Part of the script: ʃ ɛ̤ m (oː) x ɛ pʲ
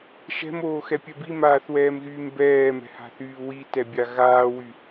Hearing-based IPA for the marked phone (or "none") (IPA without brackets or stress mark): oː